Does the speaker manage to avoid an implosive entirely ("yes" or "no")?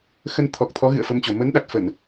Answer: no